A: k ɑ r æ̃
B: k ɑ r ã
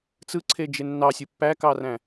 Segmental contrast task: A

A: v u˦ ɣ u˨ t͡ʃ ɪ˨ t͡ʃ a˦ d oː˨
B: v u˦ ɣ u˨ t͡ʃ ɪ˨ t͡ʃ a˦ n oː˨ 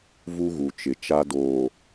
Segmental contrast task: A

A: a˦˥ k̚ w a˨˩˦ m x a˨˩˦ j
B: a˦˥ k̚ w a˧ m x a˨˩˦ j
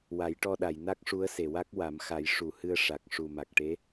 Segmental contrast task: A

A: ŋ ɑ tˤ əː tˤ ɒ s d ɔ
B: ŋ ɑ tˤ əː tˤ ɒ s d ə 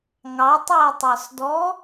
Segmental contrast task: A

